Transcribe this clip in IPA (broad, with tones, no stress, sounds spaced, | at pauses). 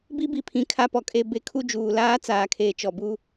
b i˦ b i˨ pʰ ĩ˨ kʰ a˦˨ p ɔ˨ kʼ e˦˨ b e˦ kʰ u˦ d͡ʒ uː˨ l aː˦ t͡s aː˨ kʰ eː˨ t͡ʃ ɔ˨ b u˦